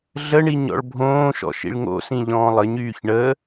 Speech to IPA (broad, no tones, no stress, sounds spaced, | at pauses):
ɮ ə ɳ i ɲ ɔ̰ ɭ bʱ õː ʃ ɔ̰ ʃ ḭ ɭ ŋ o̰ s ĩ ʎ ɔ̃ː lˠ ə ɲ yː ç ɳ ə